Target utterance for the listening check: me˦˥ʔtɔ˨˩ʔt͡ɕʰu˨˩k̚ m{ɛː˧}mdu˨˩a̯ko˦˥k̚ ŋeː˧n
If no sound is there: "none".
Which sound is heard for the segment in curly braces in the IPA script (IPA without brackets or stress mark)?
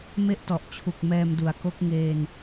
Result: ɛː˧